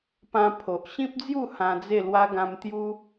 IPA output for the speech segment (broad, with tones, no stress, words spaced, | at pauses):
pã˧pʰo˨ʔ ɕĩ˦p̚d͡zju˥˧ hã˧d͡ze˥˧lwa˦ ɡã˧mt̪ju˦